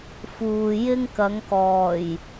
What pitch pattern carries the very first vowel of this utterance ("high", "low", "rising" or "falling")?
low